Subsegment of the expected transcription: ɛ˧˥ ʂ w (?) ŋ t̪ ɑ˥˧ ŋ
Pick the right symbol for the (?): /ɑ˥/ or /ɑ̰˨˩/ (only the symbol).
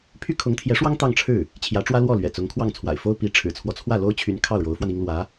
ɑ˥